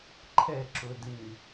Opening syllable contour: falling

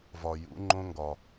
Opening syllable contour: low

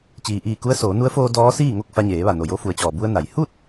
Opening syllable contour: low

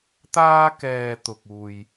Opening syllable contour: high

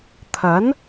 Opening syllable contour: rising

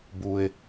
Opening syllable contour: low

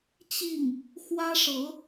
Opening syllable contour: falling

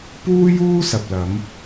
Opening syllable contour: high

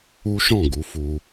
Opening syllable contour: high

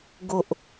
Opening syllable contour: low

